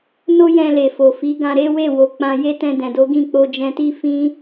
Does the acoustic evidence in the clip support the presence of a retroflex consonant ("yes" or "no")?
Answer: no